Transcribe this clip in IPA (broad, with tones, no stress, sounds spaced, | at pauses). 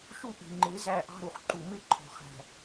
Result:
ʃ u˦ ʔ i̤˨ ŋ͡ǃ ɪː˨˦ z æ˦˨ ʔ ɑ̤˦ ɾ u˨ χ ǃ u˨ m ɪ˦ ǃʰ ɔ̤˨ χ æ̤˨